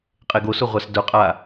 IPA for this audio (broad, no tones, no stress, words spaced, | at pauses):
qʼeɡosʊ ʁʷasdʊqʼa